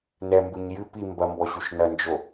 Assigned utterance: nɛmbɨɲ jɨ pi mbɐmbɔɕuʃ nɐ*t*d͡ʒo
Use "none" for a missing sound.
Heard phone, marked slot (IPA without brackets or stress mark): n